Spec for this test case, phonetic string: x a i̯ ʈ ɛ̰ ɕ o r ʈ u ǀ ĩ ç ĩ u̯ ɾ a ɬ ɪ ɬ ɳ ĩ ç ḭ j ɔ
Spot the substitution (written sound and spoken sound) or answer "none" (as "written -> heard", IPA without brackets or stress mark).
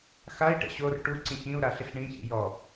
none